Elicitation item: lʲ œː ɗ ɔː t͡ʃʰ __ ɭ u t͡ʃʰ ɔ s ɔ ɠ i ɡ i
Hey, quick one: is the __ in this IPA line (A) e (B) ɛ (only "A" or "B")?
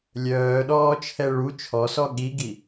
B